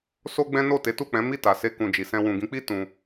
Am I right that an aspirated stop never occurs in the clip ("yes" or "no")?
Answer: yes